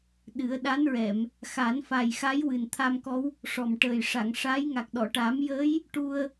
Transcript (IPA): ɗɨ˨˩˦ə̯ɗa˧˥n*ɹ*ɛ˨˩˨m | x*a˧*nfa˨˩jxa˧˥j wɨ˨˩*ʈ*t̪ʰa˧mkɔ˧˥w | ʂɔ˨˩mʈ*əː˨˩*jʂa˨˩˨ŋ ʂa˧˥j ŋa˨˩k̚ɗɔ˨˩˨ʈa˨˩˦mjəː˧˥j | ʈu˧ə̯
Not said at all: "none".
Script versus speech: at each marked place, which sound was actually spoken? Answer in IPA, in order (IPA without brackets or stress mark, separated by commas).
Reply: ɹ, a˨˩˦, n, əː˨˩